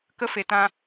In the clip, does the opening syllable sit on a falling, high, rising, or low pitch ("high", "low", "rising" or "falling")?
high